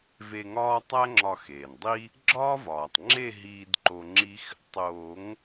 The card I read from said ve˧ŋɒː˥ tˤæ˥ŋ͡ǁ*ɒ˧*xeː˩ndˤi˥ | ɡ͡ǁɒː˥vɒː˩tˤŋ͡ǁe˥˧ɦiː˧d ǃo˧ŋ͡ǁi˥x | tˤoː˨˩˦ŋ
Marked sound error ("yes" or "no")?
no